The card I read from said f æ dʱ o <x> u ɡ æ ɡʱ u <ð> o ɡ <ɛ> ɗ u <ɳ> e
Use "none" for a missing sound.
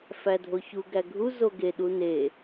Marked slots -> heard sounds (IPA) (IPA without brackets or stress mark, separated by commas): ç, z, e, n